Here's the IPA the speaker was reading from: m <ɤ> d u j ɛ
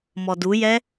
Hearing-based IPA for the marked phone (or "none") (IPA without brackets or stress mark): ɔ